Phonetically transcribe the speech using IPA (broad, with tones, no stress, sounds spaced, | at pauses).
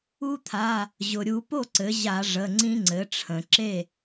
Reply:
u˦ t̪ʰ a˩˧˩ | ʑ ʊ˩ ɾʲ u˧˩˧ p o˥˩ ǀ ɘ˩˥ ʑ a˧˩˧ ʐ ə˩˧˩ ŋ͡ǀ ĩ˦ ŋ͡ǀ ɘ˩˥ ʈ͡ʂʰ ə̃˩ ǁ e˥˩